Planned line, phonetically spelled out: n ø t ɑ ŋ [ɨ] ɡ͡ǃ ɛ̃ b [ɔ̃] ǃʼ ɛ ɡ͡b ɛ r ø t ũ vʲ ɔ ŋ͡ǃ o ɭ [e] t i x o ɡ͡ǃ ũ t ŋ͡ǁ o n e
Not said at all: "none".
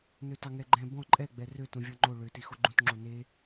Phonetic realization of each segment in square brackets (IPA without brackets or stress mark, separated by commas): ɛ, ɔ̃, ø